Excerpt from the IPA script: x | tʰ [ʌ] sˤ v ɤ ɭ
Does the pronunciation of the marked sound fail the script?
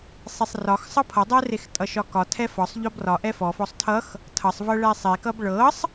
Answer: no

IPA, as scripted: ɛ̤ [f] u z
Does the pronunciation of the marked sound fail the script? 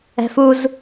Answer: no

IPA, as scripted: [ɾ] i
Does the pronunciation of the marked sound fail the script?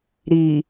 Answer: no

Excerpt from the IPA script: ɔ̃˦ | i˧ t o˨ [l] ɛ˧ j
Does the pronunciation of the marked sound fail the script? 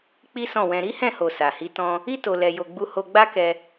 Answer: no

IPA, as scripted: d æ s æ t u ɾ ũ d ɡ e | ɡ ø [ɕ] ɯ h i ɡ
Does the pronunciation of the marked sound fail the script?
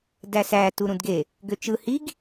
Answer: yes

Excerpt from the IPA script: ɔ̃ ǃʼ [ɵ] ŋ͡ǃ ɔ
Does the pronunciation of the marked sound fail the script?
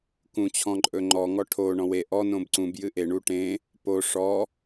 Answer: no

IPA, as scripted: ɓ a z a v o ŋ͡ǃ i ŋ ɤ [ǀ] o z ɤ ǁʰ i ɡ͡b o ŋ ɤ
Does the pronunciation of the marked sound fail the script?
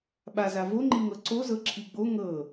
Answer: no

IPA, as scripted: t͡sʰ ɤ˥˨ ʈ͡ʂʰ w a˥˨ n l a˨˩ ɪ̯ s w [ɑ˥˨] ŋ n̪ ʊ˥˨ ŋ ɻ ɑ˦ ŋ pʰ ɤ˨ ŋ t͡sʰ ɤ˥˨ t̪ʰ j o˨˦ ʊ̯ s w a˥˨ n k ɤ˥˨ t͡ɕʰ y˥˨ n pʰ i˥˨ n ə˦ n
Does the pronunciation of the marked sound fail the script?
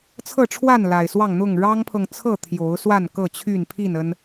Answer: no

